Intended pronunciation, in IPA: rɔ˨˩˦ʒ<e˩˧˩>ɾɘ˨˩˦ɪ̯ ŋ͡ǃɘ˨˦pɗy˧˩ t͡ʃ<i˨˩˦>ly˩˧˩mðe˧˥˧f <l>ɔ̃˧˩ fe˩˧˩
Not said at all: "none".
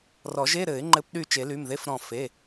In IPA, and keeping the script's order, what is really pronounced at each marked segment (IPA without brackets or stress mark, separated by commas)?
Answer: e˧˥˧, e˨˩˦, ɾ